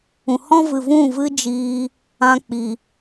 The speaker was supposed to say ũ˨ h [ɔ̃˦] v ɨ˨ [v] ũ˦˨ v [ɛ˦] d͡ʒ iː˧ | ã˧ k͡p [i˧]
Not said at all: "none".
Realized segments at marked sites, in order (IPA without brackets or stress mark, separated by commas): ɔ̃˦, v, ɨ˦, i˨